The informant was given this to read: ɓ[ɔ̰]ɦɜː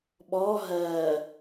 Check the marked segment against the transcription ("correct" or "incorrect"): incorrect